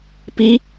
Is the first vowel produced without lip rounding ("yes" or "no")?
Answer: yes